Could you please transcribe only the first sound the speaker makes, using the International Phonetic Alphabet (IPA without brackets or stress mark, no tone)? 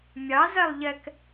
mʲ